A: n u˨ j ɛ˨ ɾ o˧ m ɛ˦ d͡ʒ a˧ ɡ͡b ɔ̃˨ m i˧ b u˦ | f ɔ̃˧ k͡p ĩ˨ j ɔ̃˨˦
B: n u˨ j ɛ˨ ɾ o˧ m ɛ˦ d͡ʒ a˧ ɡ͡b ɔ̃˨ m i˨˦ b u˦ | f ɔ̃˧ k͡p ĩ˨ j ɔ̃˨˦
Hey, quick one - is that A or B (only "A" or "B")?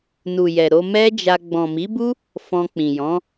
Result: B